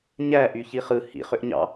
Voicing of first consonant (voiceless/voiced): voiced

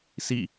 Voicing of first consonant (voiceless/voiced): voiceless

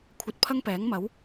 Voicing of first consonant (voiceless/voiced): voiceless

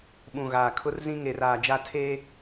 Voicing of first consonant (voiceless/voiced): voiced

